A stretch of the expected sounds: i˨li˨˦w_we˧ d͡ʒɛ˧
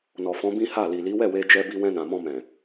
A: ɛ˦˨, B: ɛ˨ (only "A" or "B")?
A